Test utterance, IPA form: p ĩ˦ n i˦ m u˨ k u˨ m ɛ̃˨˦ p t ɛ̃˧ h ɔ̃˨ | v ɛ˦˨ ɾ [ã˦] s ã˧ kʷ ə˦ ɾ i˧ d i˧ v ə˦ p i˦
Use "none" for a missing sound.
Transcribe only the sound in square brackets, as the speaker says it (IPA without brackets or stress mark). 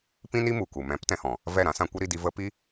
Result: ã˦